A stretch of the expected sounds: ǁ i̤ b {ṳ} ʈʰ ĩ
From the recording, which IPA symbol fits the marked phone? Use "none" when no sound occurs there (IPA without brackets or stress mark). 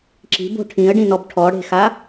o̤